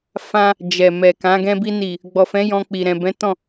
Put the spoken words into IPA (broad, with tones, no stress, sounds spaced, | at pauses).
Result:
f ã˧ | d͡ʒ ɛ˨ m ɛ˨ k ã˨˦ ɡ ɛ̃˧ b i˧ n i˨ | ɡ͡b ɔ˨ f ɛ̃˨˦ j ɔ̃˧ k͡p i˨ ɾ ɛ̃˨ b ɛ̃˨˦ t ɔ̃˦˨